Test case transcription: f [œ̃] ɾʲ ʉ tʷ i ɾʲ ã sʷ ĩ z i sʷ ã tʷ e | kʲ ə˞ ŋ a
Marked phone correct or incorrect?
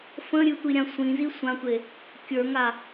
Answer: incorrect